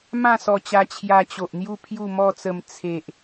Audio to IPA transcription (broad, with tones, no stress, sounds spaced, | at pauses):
m ã˥˧ s ɔ˧ t͡ɕ a˧ t͡ɕʰ j a˧ t͡ɕ o˨ ʔ n̪ j u˥˧ pʰ j u˥˧ m ɔ˥˧ t͡s ə˧ m t͡sʰ e˨ ʔ